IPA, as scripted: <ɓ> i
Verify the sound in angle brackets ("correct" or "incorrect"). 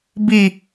incorrect